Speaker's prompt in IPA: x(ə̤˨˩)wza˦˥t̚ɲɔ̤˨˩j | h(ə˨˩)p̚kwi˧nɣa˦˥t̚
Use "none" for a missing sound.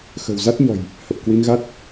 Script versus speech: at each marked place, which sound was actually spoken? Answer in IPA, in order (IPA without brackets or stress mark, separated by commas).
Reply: ə̤˨˩, ə˨˩